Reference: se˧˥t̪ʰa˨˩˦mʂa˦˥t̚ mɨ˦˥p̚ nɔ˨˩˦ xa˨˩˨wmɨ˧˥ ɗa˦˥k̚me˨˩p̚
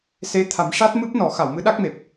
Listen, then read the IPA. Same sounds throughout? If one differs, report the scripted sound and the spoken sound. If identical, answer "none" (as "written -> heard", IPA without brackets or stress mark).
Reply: none